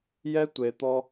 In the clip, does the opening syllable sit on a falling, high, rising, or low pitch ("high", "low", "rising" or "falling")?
high